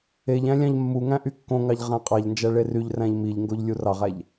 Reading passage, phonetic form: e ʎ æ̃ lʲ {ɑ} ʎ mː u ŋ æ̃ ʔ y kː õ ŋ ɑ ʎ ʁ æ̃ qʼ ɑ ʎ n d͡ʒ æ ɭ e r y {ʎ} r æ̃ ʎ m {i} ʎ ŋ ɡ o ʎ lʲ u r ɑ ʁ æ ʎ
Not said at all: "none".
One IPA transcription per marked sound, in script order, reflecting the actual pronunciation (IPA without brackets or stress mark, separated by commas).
ɑ̃, ʎ, i